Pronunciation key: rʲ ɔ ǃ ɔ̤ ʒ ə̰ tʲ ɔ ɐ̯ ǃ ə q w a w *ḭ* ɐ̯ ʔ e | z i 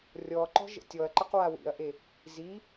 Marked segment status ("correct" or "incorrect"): correct